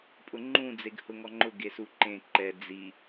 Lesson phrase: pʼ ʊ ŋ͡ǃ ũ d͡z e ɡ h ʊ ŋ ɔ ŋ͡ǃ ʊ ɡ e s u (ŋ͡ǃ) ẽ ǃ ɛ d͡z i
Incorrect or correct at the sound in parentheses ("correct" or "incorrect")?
incorrect